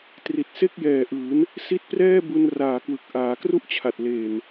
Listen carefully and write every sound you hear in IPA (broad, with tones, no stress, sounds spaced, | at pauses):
t r i˨˩ t̚ s e˥˩ k̚ j ɛː˨˩ ʔ ɯː˩˦ n | s i˦˥ t̚ p r ɛː˥˩ b u˧ n r aː˨˩ k w ɯ˨˩ k̚ ʔ aː˩˦ k r u˥˩ ʔ t͡ɕʰ a˨˩ t̚ l eː˨˩ n